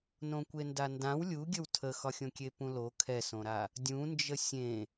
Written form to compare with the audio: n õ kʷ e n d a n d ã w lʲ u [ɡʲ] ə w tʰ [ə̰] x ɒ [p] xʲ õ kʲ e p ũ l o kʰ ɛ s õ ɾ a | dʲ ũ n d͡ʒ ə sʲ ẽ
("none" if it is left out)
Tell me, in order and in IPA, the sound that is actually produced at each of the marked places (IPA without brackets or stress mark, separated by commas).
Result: ɡʲ, ə, none